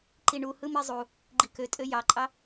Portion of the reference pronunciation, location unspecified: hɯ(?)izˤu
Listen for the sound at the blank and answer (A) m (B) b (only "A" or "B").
A